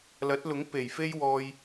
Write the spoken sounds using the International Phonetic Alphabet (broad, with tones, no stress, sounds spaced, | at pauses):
l ɐ˨˥ t̚ l ʊ˨˥ ŋ p e˨˩ j f e˥ j w ɔː˥ j